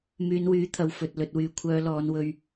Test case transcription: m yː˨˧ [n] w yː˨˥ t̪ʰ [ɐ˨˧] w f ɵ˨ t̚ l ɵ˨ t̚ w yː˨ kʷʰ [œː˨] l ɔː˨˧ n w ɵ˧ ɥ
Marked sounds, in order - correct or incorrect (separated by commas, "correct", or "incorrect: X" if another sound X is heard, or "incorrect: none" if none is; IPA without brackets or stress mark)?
correct, incorrect: ɐ˨, incorrect: œː˨˧